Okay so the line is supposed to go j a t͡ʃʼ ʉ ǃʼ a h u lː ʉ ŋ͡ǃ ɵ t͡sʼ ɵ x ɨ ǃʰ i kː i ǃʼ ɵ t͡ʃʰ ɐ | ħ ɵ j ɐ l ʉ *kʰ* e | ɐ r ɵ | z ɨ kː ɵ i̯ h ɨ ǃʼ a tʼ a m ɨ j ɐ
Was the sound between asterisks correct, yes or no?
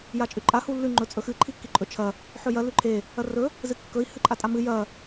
no